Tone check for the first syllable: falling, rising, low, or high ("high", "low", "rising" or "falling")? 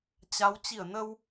rising